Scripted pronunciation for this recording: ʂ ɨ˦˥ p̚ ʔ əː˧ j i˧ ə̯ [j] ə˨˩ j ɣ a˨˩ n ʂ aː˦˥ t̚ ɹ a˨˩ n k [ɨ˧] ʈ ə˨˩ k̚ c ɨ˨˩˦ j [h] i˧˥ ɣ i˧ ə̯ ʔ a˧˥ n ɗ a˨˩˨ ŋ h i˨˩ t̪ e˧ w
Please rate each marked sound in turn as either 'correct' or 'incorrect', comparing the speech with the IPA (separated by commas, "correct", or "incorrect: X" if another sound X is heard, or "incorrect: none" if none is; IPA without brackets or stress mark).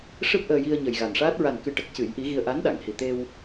incorrect: ɲ, incorrect: ɨ˨˩, incorrect: ʔ